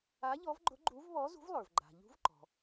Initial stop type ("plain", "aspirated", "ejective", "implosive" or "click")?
click